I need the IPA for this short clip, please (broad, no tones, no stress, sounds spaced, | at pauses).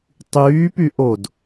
tˤ yː p y ʔ o d